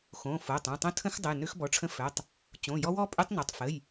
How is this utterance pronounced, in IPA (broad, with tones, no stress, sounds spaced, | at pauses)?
x õ˩˧˩ f o˩˧˩ tˤ õ˩˧˩ tˤ õ˦˥ tʰ ə̃˦˥ x dˤ ə˩˧˩ j n ø˦˥ x b ɔ˩˧˩ ʈ͡ʂʰ ə̃˦˥ f œ˩˧˩ tˤ | t͡ɕ õ˩˧˩ j ɔ˦˥ w ɔ˦˥ pʼ ø˦˥ tˤ n o˩˧˩ tˤ f ə˩˧˩ j